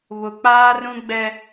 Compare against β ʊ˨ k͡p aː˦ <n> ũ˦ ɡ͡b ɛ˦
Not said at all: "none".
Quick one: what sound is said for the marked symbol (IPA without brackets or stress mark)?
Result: r